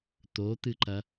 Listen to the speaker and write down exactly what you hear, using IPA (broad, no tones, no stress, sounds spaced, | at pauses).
t̪ o t̪ ɨ ǃ ɐ